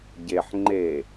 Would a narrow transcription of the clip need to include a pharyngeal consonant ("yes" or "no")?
yes